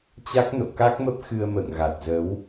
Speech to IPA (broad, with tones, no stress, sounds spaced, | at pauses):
t͡ɕ a˦˥ k̚ n o̰˧˨ k a˦˥ k̚ m ə˦˥ p̚ x ɨ˧ ə̯ m ə̰ː˧˨ ŋ ɣ a˨˩ t̚ z ə˨˦ w